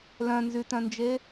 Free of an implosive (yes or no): yes